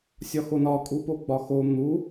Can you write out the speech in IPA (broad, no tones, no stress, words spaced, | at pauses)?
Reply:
sʲɒxonɒ kʼupoɡ͡bɒxo n̪u